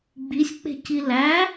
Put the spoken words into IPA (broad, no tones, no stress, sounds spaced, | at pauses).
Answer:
ɡ͡b i sʲ k͡p e̤ c i l æ